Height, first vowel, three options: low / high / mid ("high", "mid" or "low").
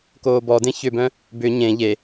mid